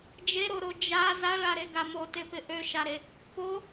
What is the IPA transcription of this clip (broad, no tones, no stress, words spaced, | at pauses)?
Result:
d͡ʒeɾoɾo d͡ʒa zaɭaɾeɡa motepɪ ʔøʃaɾe | po